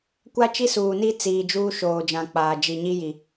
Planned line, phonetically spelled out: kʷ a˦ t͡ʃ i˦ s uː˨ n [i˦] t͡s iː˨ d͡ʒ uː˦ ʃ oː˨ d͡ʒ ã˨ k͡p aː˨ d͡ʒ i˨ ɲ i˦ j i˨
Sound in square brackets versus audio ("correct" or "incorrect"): correct